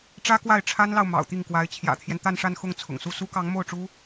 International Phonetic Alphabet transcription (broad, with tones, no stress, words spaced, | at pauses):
ʈ͡ʂä˥kwa˥˩ɪ̯ʈ͡ʂʰa˥nlɑ˨ʊ̯ mɑ̰˨˩ʊ̯t̪i˥˩ŋkwa˧˥ɪ̯ t͡ɕʰjä̰˨˩t̪ʰjɛ˦nt̪a˥˧nʂa˥˧n xʊ˥˩ŋt͡sʰʊ̰˨˩ŋsu˥˩ su˥kɑ˧˥ŋmo˥˩ʊ̯ʈ͡ʂu˥